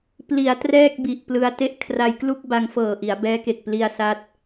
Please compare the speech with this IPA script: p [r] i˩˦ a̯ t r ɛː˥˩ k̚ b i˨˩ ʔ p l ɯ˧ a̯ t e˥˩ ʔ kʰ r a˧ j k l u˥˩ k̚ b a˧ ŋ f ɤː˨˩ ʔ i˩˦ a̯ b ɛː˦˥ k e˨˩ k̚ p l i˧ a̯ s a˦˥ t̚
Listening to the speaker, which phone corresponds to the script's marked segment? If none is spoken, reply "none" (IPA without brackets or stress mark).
l